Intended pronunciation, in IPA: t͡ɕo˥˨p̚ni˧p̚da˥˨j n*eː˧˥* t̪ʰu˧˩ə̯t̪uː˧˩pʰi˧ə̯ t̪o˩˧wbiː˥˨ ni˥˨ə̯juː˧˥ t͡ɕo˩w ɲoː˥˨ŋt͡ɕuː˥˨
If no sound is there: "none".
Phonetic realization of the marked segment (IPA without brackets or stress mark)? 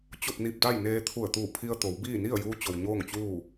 eː˧